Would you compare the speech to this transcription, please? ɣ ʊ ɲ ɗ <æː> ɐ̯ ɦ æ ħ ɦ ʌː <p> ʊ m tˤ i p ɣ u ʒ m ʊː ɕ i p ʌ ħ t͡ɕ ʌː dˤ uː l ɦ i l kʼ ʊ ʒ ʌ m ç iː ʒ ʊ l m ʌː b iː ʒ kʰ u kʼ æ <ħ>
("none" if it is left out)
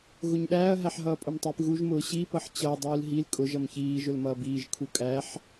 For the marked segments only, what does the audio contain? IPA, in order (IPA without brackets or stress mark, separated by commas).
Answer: æː, pʼ, ħ